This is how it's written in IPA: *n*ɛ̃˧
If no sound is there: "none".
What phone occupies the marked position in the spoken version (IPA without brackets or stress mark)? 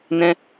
n